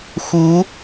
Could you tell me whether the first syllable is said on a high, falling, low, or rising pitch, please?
rising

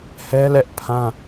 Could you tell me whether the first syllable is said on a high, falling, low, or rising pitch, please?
high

